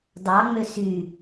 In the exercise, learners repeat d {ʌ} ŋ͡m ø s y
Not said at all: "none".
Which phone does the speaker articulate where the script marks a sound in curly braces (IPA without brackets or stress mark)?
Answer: ɑ